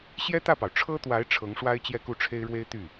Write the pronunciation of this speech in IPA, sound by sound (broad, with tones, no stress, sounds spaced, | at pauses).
ɕ j ɛ˥ t̪ ä˥˩ p ɑ˩ ʊ̯ ʈ͡ʂʰ ɤ˥ t̪ w a˧˥ ɪ̯ ʈ͡ʂʰ ɤ˧˥ ŋ ʂ w a˥ ɪ̯ t͡ɕ j ɛ˥˧ k u˥˩ ʈ͡ʂʰ e˥ ɪ̯ ɻ w e˥ ɪ̯ t̪ y˥˩